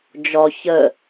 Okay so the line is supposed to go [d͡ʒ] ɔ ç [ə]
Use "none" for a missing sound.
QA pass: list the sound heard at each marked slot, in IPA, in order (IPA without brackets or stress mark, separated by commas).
d͡ʒ, ə